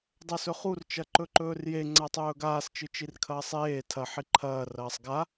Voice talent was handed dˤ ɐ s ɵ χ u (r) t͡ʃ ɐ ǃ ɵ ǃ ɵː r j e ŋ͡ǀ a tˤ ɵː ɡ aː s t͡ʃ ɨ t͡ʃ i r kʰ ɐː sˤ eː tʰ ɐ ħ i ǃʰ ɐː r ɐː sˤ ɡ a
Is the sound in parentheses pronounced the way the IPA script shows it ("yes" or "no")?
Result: yes